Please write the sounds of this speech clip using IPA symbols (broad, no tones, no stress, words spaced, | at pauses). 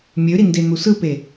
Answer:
mʲøɾinden̪u sɯpe